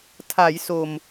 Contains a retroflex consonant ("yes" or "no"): no